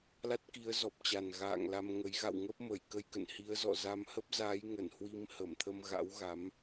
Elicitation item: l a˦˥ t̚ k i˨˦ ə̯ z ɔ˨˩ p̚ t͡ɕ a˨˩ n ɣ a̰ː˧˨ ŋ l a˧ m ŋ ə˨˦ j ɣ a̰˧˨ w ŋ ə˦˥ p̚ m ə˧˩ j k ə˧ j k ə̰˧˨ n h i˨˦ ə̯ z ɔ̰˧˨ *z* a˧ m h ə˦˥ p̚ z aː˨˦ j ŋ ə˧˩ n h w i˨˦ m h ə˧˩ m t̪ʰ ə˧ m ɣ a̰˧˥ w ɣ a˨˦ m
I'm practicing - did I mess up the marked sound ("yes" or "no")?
no